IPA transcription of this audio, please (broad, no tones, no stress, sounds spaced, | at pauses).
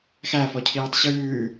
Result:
x æ f ɔ cʰ iː tˤ ɕ ʉː